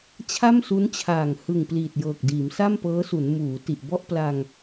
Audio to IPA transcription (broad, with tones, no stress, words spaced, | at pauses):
t͡ɕʰa˥˩msu˦˥nt͡ɕʰaː˨˩ŋ hɯ˨˩ŋ pliː˨˩t̚jɤː˨˩k̚ diː˩˦msa˥˩mpɤː˦˥su˩˦n muː˩˦ ti˨˩ʔbɔ˥˩ʔpla˧ŋ